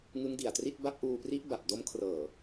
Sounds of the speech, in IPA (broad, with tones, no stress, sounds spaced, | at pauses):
ŋ ɯ˦˥ ŋ d i˨˩ a̯ t r i˥˩ t̚ b a˦˥ p̚ ʔ uː˧ p r i˦˥ ʔ b a˨˩ p̚ d o˦˥ m kʰ r ɤː˨˩